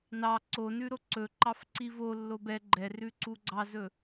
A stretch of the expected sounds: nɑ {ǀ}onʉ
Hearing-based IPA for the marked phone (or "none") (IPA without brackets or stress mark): ǀ